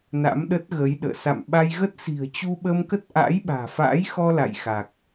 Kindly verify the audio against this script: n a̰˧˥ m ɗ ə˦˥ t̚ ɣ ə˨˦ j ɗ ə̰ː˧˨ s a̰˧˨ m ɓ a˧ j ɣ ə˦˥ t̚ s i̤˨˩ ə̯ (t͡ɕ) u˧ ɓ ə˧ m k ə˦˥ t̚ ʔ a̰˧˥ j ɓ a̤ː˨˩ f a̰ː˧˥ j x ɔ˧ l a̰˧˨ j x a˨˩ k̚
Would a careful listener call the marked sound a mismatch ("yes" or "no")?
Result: no